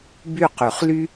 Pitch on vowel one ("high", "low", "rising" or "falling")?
falling